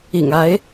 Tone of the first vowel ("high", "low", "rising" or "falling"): low